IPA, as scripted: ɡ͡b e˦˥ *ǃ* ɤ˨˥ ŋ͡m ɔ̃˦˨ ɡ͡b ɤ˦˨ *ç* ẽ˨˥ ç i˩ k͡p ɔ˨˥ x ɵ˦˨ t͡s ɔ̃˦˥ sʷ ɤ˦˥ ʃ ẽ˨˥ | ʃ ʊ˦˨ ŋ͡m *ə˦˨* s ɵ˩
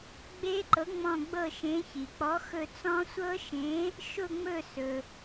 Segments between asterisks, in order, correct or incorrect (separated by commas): correct, incorrect, incorrect